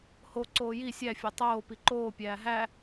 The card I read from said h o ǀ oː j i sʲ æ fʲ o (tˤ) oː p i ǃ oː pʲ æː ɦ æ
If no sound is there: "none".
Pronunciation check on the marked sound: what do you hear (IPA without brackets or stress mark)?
tˤ